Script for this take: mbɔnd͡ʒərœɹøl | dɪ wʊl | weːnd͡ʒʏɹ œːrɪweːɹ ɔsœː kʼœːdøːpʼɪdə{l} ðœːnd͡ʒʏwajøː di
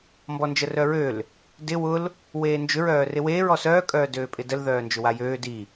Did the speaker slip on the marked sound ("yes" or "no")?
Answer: no